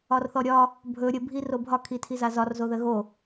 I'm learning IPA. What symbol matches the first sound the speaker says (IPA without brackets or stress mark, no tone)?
ɒ